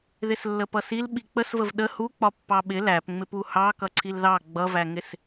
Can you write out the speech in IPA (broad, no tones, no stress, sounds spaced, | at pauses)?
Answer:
ð ɪ s lː ə p ʌ s i l ɓ i k͡p ə s v ə v ɗ ə h u k͡p ɒ pː ɑ ɓ ɪ l æ p ŋ͡m ɪ p u h ɑ k ʌ ǀʰ i l ð ɑ ɡ͡b ʌ v æ ŋ ɪ s